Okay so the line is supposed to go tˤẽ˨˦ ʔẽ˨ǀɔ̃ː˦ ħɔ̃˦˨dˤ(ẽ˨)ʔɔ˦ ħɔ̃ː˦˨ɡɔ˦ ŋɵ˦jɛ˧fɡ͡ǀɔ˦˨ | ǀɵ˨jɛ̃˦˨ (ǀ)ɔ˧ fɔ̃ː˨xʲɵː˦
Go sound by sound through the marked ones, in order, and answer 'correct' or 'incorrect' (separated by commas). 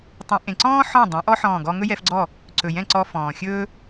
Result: incorrect, correct